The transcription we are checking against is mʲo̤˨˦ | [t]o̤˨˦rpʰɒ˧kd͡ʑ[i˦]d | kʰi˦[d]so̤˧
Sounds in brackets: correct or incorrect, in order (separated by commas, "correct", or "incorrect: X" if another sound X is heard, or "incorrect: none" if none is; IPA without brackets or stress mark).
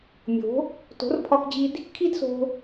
correct, incorrect: i˧, correct